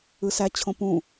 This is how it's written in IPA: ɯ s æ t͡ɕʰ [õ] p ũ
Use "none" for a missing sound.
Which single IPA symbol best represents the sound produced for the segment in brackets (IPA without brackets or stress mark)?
õ